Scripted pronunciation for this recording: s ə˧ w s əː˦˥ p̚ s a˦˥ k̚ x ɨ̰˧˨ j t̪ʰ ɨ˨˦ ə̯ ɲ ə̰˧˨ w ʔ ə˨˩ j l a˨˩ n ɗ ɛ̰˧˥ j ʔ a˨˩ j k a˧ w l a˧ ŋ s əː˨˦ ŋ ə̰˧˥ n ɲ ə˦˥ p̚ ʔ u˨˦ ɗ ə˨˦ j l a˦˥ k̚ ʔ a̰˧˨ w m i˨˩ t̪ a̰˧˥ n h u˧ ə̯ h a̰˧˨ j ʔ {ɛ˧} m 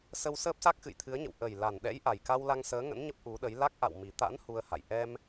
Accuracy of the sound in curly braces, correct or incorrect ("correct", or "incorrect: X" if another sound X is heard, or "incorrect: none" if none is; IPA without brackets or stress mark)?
correct